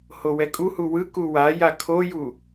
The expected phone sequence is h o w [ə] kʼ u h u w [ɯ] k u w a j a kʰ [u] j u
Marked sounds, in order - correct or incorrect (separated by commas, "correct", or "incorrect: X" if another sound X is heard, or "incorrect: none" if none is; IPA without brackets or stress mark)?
incorrect: ɛ, correct, incorrect: o